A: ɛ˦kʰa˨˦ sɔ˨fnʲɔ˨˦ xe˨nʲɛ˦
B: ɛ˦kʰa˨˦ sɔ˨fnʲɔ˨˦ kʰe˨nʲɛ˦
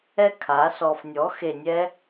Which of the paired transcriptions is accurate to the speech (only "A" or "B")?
A